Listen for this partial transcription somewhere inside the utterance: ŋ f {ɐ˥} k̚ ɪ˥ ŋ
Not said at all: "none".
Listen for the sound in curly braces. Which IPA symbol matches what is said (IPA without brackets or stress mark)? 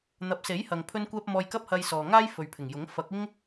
ɐ˨˥